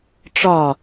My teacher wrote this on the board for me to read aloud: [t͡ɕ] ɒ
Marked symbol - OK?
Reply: no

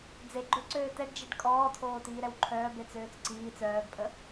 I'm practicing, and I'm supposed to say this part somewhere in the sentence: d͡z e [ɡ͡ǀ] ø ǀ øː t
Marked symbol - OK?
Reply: no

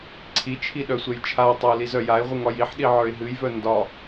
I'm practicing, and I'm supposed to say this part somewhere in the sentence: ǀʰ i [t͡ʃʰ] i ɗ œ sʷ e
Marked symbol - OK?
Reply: yes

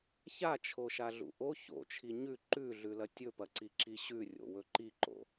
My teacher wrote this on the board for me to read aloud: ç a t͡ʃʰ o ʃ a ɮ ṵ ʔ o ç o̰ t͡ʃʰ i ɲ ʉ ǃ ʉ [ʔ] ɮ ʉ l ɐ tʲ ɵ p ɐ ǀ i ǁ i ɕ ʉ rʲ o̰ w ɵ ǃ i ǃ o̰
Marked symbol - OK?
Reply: no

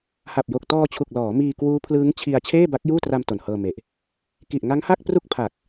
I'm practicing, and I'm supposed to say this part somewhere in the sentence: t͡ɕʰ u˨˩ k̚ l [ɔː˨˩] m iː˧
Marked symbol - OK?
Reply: no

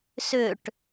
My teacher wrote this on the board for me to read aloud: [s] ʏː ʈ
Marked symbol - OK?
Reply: yes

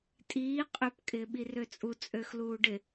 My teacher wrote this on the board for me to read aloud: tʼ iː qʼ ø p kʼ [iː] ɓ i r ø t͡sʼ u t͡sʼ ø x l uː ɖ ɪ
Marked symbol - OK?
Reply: no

